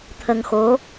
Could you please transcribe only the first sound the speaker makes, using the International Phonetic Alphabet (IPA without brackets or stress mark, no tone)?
t̪ʰ